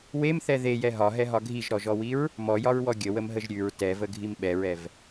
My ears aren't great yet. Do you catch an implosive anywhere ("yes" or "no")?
yes